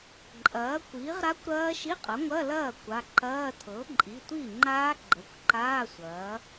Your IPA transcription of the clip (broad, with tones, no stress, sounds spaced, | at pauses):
ǃʼ ɐː˩˥ kʷ iː˩˥ ʁ ɾ a˦˥ kʷ ɾ ɐː˦˥ ʃ i˧˥˧ qʼ ɐ˩˥ ŋʷ ɐ˧˥˧ l ɐː˥˩ kʷ a˩˧˩ ǃ ɐː˧˥˧ tʰ ɤ˩˥ ǃʼ i˩˧˩ tʷ i˥˩ ŋ͡ǃ aː˦˥ ɡ͡ǃ ə˩˧˩ kʷ ǃ aː˧˥˧ sʷ ɐː˩˥